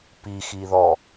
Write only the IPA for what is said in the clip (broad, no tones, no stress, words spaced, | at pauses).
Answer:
pixiðɔ